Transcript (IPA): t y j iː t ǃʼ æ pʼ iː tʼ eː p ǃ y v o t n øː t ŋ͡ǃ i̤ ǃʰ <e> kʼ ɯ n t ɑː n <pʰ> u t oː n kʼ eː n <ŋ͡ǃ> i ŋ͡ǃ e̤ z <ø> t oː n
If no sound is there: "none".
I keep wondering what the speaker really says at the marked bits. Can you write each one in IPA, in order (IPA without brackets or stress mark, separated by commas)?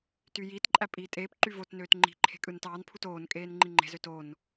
e̤, pʰ, ŋ͡ǃ, ø